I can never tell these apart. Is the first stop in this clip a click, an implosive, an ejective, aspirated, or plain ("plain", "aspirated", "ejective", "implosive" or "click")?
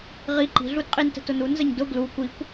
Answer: click